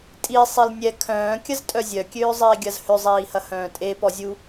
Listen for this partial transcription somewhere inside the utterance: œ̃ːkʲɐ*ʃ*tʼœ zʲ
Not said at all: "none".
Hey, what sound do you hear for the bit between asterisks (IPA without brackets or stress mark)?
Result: z